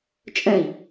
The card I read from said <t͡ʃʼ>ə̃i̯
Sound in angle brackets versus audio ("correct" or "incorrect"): correct